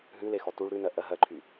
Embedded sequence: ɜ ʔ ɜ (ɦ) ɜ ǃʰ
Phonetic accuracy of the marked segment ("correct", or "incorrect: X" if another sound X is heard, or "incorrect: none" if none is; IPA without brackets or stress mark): correct